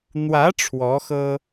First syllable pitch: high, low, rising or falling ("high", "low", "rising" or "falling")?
rising